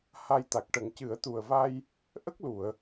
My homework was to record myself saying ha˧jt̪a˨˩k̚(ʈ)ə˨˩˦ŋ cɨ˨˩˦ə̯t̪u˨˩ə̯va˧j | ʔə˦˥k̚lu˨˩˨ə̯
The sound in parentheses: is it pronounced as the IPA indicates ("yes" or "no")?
yes